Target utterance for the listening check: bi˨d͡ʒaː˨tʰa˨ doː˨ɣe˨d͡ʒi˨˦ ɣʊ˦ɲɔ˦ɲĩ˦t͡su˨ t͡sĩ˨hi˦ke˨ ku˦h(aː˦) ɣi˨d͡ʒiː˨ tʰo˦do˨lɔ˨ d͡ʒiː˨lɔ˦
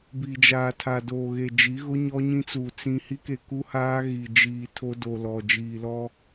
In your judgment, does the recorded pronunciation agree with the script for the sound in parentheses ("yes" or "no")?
yes